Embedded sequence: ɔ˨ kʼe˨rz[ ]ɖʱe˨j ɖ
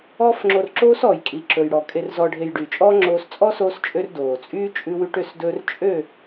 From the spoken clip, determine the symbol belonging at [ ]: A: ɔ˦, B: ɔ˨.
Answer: B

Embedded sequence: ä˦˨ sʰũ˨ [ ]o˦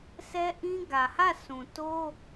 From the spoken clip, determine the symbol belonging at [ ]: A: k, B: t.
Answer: B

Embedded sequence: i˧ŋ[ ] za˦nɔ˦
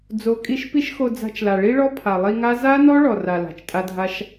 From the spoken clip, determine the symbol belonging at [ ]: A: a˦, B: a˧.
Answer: A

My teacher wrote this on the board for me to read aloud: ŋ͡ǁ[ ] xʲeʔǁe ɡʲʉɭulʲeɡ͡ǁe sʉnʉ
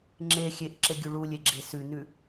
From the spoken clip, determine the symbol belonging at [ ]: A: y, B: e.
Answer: B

